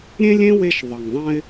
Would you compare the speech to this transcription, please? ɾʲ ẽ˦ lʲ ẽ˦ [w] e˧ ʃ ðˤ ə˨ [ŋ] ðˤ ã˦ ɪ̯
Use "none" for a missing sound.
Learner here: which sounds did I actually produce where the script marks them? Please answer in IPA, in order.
w, ŋ

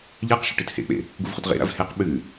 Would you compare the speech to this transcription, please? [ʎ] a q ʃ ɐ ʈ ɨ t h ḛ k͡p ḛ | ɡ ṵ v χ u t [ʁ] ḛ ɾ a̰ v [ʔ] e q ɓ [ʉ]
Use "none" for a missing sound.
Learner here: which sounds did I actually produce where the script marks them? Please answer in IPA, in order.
ʎ, ʁ, h, ʉ

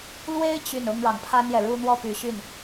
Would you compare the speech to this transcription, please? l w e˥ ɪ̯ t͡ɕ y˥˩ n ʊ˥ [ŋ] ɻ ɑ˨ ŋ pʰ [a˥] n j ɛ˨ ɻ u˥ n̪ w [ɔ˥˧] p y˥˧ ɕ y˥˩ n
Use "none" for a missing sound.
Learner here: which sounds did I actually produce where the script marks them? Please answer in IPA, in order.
ŋ, a˥, ɔ˥˧

